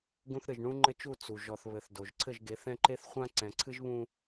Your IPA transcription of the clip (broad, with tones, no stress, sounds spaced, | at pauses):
ɡ ũ˦ θ ɾ ɨ˨ ʒ ɳ ũ˦ ŋ͡ǃ ɘ˦ t͡ʃ u˦˨ t͡s u˨ ʒ ɔ˨ θ β ɘ˨ θ d o˨ ʒ ǀʰ ɘ˦˨ ʒ ɡ e˨˦ θ ɛ̃˦ ǃ e˦ θ χʷ ã˦ ǀ ɛ̃˨ ǀʰ ɨ˦ ʒ β ũ˦